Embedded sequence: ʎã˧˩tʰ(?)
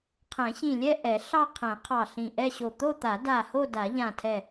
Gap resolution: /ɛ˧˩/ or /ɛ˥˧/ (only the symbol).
ɛ˧˩